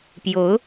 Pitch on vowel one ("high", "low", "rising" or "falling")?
rising